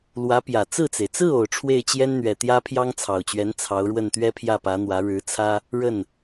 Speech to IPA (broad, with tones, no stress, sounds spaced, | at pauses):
l w ä˧˥ p j ä˨˩ t͡s ɹ̩˥˩ t͡s e˩ ɪ̯ t͡s ɹ̩˥˩ o˨˩ ʊ̯ ʈ͡ʂʰ w e˥˩ ɪ̯ t͡ɕ j ɛ˥ n n̪ ɥ ɛ˨˩ t̪ j ä˥ pʰ j ɑ˥ ŋ t͡sʰ ɑ˨˩ ʊ̯ t͡ɕ ɥ ɛ˧˥ n t͡sʰ ɑ˧˥ ʊ̯ ɻ w ə˥˩ n t̪ ɥ ɛ˥ pʰ j ä˥˩ p ä˧˥ n̪ w ä˧˥ ɻ ɻ̩˧˥ t͡sʰ ä˥ | ɻ ə˥˩ n